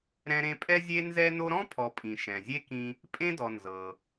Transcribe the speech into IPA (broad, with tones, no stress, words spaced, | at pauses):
ɾɛ̃˦ɾẽ˦pʼɛ˥ zʲe˥ nzɛ˦no˦ɾɔ̃˥ pʰɔ˨pʼĩ˩ ʃɛ̃˩zʲe˥kĩ˦ | pʼẽ˥dɔ˨ nzɤ˩